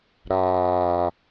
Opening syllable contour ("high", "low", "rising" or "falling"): low